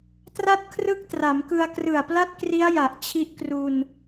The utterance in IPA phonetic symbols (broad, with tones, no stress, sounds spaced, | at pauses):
t r a˥˩ t̚ kʰ r ɯ˥˩ k̚ t r a˩˦ m k ɯ˧ a̯ k r ɯ˨˩ a̯ p l a˥˩ t̚ k r i˦˥ a̯ j a˨˩ ʔ t͡ɕʰ i˦˥ ʔ k r u˧ n